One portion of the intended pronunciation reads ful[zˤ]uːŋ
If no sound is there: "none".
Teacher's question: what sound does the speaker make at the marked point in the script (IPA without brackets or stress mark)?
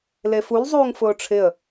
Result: zˤ